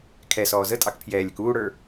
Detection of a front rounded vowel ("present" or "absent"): absent